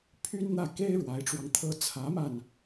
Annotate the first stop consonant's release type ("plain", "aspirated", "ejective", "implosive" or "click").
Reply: aspirated